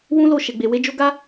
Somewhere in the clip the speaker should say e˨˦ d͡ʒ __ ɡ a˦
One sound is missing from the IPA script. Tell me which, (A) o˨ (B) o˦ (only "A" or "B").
B